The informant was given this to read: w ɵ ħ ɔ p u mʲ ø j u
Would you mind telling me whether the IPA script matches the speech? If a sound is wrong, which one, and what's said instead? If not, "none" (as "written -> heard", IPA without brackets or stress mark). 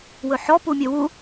j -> w